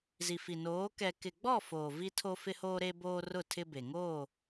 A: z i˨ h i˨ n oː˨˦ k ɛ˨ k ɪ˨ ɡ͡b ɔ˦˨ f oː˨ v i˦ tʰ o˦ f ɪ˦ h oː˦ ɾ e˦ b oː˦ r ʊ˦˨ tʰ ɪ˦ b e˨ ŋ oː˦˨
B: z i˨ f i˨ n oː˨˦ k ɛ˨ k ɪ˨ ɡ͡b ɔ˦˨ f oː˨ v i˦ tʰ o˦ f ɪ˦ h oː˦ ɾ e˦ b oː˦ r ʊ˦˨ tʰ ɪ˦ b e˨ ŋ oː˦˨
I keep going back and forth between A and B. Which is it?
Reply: B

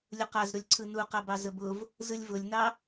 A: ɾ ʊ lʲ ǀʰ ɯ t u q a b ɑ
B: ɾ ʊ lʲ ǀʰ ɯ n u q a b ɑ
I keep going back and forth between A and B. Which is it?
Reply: B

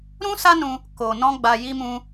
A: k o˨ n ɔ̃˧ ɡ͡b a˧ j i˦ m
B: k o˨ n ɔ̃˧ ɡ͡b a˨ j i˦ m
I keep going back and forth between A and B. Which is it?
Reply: A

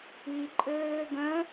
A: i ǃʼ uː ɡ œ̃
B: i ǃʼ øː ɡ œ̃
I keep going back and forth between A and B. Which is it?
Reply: B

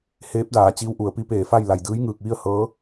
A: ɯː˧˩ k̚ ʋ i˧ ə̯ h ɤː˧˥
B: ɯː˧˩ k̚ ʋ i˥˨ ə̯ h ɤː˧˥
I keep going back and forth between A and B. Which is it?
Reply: B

